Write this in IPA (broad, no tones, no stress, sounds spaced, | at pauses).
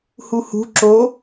h u h ṳ ǁ o